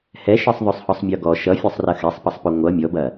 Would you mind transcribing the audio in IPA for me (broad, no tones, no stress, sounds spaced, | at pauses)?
h ɛ ʃ ɤ sˤ ðˤ o sˤ h ɔ sˤ mʲ ɔ ɡ ɔ ʃ ʌ fʲ ɔ sˤ r ɐ x ɛ sˤ p ʌ sˤ p o ŋʷ ʌ mʲ ɔ b ɐ